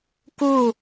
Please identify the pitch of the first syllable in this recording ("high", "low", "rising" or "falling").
falling